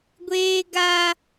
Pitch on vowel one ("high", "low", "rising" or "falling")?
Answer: high